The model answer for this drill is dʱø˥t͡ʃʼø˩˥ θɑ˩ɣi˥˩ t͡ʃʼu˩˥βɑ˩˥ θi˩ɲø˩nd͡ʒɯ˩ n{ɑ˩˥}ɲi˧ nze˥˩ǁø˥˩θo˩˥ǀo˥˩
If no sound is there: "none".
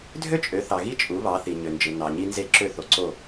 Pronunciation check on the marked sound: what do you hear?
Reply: ɑ˩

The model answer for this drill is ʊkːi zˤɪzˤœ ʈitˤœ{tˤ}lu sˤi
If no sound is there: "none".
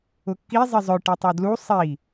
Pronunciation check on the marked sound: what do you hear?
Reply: d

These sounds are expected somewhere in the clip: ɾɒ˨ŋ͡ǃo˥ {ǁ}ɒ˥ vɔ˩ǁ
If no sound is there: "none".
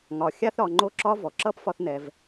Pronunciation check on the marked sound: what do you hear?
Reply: ǁ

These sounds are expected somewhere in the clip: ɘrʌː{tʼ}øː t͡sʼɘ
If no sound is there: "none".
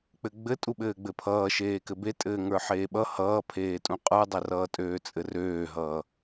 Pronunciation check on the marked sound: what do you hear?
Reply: tʼ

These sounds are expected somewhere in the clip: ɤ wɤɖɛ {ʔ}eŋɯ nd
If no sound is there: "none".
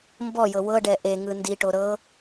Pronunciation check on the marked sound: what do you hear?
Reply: ʔ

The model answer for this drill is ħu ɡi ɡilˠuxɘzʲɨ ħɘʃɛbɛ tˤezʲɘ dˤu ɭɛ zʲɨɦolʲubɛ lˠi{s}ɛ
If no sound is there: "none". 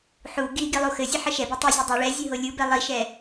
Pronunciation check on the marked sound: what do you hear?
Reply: ʃ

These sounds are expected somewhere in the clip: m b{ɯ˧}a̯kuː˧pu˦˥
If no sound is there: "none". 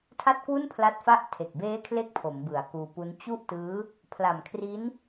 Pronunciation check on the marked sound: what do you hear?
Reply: ɯ˩˦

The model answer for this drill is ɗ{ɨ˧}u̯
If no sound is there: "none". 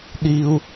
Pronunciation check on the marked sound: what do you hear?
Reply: i˧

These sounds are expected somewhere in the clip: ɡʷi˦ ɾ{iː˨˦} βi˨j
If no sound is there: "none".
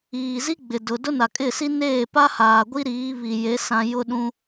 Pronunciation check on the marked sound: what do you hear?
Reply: iː˨˦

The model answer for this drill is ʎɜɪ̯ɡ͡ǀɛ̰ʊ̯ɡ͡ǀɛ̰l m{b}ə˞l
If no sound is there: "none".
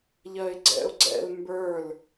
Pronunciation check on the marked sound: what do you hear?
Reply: b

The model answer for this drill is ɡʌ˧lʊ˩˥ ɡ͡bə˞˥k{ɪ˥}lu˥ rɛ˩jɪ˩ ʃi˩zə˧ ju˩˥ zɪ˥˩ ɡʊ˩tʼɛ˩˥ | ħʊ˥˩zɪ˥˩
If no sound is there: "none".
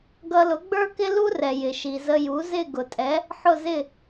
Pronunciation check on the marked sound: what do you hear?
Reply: ɪ˥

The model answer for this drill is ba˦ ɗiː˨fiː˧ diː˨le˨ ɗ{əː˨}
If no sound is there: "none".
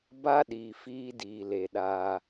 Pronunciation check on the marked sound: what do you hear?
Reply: aː˨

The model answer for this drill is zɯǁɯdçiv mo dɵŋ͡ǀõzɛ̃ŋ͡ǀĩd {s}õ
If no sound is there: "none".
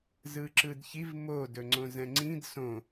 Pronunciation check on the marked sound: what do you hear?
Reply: s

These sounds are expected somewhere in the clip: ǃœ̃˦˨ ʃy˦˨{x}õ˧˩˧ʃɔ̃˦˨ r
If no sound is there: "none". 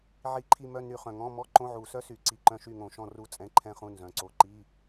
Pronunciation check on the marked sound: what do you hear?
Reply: ŋ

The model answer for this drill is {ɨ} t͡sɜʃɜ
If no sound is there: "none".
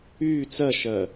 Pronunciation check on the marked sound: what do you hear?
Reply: y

